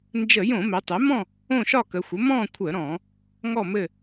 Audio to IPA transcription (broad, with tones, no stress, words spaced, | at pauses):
nd͡ʒə˧˩˧jõ˧˩˧ mɛ˩˧tˤɛ˩˥mɔ̃˥˨ | õ˥˨ʃɒ˥˨kə˩˧ xʷə˩˥mɔ̃˥˨kʷʰə˧˩˧ɾɔ̃˧˩˧ | ŋɔ˥˨mɘ˥˨